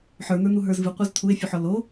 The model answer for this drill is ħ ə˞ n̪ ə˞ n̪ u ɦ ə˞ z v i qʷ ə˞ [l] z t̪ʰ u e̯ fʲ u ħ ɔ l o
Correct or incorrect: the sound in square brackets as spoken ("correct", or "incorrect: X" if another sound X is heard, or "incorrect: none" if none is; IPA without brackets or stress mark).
incorrect: none